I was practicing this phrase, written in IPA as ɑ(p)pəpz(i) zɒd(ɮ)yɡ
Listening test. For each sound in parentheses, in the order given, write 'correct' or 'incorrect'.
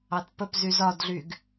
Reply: incorrect, incorrect, correct

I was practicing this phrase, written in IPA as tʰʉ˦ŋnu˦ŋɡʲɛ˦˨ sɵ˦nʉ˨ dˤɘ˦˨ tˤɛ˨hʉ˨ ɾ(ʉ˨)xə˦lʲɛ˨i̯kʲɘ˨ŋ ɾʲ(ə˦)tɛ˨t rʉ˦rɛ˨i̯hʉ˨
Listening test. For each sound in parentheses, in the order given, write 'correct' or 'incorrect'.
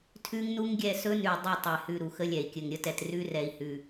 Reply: incorrect, correct

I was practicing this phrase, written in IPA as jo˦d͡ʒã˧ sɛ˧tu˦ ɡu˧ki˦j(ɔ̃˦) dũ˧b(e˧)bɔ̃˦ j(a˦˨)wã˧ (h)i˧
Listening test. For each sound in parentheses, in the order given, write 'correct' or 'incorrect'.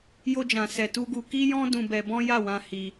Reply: correct, incorrect, correct, correct

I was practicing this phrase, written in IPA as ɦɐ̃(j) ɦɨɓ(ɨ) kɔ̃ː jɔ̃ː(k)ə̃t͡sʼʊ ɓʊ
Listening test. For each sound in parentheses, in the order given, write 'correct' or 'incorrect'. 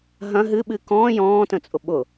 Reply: incorrect, correct, incorrect

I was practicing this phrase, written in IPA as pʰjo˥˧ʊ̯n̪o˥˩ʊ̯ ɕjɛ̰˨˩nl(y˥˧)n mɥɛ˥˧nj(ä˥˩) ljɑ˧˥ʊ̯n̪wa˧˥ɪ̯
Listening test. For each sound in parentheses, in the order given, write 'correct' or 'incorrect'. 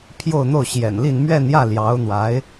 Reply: incorrect, correct

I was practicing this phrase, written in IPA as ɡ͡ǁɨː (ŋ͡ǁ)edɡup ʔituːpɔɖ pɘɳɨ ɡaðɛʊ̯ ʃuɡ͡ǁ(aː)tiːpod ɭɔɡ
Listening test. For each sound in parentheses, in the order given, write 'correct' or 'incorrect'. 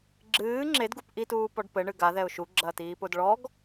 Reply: correct, incorrect

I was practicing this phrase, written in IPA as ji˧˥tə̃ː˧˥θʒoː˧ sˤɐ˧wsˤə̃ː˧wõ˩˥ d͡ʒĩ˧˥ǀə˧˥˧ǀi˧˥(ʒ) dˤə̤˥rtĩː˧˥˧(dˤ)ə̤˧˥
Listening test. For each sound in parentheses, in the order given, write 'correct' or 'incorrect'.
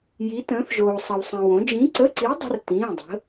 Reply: incorrect, correct

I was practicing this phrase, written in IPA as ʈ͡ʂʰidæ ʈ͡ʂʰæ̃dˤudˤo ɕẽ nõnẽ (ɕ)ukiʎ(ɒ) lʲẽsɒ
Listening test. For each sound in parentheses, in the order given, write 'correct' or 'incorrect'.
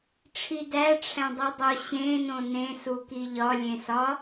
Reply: incorrect, correct

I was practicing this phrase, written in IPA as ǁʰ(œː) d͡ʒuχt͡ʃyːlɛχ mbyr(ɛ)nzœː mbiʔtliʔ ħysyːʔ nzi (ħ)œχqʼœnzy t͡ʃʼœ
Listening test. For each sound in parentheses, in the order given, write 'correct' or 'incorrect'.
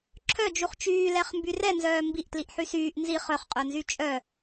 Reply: incorrect, correct, incorrect

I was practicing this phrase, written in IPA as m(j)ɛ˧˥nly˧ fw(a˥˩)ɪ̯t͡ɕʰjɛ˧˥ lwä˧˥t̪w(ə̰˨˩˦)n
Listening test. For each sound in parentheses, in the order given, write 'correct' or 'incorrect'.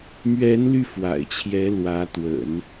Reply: incorrect, incorrect, correct

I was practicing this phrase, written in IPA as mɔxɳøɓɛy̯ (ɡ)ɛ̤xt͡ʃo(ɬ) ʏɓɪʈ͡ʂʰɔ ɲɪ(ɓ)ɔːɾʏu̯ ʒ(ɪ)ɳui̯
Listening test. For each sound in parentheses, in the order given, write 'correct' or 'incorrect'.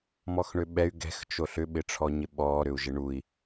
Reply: correct, correct, correct, correct

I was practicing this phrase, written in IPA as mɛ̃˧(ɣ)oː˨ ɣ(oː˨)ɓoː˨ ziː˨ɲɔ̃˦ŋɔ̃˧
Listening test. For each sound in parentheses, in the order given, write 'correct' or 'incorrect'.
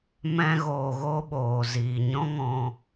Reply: correct, incorrect

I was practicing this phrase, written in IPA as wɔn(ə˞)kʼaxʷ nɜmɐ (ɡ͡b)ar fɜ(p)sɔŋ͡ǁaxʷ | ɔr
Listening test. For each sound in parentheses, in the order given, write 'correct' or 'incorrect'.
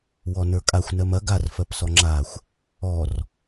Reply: correct, incorrect, correct

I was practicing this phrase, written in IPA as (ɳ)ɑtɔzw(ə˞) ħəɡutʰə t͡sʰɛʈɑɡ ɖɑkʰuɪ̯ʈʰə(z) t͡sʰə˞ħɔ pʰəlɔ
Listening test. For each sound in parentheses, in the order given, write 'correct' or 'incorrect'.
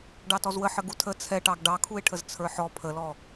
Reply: incorrect, incorrect, correct

